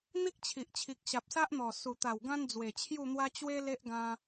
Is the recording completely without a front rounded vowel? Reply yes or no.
yes